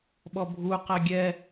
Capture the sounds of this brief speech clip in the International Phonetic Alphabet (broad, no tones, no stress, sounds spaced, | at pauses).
ɓ ɔ bʱ u q ɛ ɡʲ ɛ